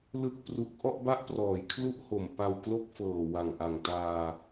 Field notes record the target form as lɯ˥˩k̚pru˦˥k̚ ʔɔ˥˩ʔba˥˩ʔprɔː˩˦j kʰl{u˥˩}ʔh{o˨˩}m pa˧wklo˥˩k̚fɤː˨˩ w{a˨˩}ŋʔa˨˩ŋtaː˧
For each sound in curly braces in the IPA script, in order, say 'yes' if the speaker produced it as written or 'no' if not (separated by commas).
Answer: yes, yes, yes